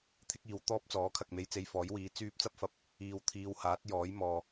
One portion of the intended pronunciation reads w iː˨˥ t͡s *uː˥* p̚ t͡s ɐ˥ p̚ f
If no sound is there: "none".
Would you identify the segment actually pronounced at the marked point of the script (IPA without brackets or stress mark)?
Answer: yː˥